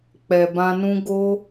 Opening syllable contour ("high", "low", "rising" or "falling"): low